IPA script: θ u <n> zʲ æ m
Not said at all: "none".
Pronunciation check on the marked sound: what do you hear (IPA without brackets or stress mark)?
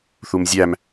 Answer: m